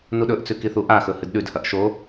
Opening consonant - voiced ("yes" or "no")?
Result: yes